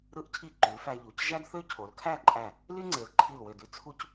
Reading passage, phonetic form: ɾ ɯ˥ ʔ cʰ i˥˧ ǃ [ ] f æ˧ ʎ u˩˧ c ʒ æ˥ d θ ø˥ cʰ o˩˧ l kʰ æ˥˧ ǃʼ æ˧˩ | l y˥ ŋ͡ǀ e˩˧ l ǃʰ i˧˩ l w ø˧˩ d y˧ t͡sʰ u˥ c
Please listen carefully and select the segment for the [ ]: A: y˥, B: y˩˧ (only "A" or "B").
B